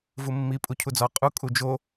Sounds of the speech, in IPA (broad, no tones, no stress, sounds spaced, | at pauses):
v u mː i pʼ u cʰ u d͡z ɒ qʼ u kʼ u d͡ʒ o